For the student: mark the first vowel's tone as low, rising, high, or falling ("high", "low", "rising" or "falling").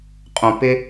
low